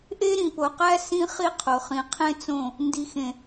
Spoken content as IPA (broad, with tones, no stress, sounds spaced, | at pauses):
ʔ e˦ ɾ ĩ˨ p o˨ q æ˦ s ĩ˦ χ i˦ qʰ o˨ χ ĩ˨ qʰ ẽ˦ t͡s õ˦˨ | n d i˨ x ẽ˨